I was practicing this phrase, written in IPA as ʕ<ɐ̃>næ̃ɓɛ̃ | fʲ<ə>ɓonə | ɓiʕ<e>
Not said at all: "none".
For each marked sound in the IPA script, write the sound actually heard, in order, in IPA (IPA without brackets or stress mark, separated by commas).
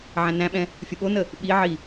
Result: æ̃, ə, i